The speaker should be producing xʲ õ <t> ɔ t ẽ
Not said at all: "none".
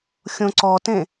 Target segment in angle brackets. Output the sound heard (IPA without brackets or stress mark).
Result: ǀ